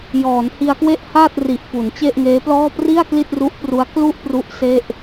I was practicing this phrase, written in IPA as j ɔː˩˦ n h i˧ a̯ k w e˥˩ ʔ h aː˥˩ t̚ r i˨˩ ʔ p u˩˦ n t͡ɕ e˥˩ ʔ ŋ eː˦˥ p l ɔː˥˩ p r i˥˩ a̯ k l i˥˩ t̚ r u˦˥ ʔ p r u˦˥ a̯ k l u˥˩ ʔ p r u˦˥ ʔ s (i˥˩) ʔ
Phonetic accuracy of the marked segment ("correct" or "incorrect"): incorrect